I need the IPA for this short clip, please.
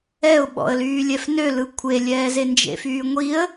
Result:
ɛ ʊ̯ ɓ ɔ̰ ə̯ l yː lʲ ɛ f n ø l ɯ kʷʰ e lʲ ɛː z e n d͡ʒ ḛ f yː ŋʷ i ə̯

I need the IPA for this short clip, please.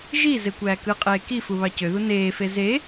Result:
ʒ i z e kʷ æː k ɯ qʼ eː k i f u β ɑ c ø ð u n eː f e z e

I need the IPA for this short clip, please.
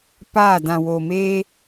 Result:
p aː˦˨ d ã˨ w oː˨ m eː˦

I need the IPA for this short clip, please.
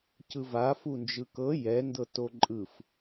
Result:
c ɯ v a f u n d͡ʒ ɯ k ɤ j ɛ n d ɤ t o ǃʼ ɯ f

